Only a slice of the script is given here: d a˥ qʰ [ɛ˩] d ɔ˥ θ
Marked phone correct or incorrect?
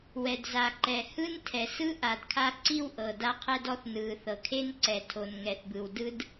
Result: incorrect